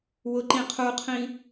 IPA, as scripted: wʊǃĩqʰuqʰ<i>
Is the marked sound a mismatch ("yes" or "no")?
yes